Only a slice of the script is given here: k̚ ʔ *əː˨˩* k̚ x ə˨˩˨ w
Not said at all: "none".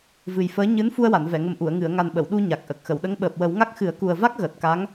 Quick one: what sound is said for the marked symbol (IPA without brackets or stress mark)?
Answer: ə˨˩